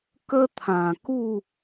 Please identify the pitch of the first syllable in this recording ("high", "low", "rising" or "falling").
high